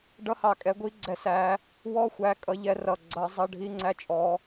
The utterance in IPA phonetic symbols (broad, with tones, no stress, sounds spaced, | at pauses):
ɖ ʌ˧˥˧ h ɑ˨˩ kʼ ɛ˨˦ ɡʷ i˧˥˧ ɡ͡ǀ ɛ˨˦ s æ˨˦ | w ɔ˧˥˧ xʷ æ˨˦ kʼ ʌ˨˦ ʎ ɛ˨˦ r ʌ˨˩ ɡ͡ǀ ʌ˨˦ zˤ ʌ˧˥˧ ɖʱ i˧˥˧ ŋ͡ǀ æ˧˥˧ t͡ʃʼ ɔ˨˦